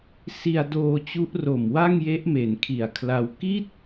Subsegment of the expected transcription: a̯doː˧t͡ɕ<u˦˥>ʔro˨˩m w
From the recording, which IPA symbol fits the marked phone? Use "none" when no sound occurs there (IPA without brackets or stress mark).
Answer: u˦˥